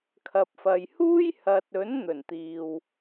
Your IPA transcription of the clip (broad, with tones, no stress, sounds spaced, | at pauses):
kʰ ɐ˨ p̚ f ɐ˨ j h uː˥ j h ɐ˨ t̚ ɵ˨˥ n n̪ ɵ˨˩ n t̪ iː˨ w